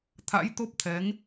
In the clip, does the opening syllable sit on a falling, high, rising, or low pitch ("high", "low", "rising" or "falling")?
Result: rising